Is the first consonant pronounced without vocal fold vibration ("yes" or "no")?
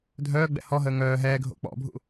no